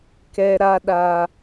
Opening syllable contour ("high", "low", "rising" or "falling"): high